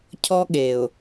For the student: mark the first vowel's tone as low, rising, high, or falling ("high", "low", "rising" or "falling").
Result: high